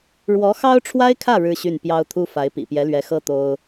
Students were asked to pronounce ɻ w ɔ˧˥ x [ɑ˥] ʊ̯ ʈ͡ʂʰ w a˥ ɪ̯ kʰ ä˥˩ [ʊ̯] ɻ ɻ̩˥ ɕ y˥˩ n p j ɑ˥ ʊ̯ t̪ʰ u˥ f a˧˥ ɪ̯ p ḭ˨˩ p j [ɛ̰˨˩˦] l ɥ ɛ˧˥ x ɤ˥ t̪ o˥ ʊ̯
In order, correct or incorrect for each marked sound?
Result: correct, incorrect, incorrect

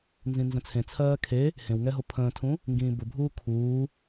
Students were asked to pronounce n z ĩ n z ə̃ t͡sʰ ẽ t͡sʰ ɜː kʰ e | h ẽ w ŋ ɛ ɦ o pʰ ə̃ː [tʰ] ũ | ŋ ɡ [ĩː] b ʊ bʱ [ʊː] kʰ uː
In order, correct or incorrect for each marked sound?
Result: correct, correct, incorrect

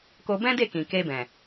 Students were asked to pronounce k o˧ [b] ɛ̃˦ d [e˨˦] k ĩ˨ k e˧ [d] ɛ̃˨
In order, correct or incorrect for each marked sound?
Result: correct, incorrect, incorrect

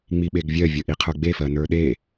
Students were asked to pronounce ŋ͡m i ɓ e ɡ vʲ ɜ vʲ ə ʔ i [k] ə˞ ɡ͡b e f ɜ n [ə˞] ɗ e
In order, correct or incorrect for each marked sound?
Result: incorrect, correct

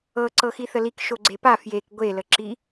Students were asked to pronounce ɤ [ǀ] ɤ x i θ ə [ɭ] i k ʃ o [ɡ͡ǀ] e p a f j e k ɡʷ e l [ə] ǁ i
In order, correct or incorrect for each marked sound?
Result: correct, incorrect, correct, correct

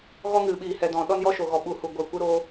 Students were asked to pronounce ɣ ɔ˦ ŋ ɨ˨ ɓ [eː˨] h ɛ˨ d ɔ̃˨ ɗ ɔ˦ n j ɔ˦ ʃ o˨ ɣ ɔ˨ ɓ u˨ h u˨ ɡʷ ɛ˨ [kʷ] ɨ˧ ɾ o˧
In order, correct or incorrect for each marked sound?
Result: incorrect, correct

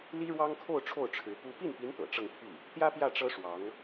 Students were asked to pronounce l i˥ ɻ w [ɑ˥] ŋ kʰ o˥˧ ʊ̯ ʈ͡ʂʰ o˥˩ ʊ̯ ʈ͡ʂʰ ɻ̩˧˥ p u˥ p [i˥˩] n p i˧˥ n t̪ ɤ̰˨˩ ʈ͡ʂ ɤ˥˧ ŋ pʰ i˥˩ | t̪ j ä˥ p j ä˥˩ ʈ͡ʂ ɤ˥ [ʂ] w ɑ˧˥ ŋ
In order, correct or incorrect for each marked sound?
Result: correct, correct, correct

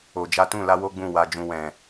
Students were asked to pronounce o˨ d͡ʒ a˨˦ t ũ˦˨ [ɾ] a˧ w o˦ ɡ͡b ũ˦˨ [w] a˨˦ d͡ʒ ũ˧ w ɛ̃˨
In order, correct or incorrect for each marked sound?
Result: incorrect, correct

